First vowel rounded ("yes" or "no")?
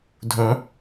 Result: yes